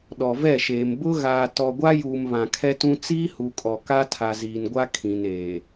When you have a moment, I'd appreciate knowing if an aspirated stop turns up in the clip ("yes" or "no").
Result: yes